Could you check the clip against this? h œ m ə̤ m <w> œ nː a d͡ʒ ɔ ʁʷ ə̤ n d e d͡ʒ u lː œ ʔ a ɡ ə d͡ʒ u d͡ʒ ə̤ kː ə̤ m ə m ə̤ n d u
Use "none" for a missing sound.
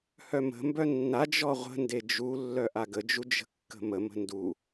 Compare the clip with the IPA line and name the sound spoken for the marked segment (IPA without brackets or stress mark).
b